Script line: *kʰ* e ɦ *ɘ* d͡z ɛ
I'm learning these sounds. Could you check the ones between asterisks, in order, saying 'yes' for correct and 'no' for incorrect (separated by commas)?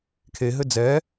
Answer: yes, yes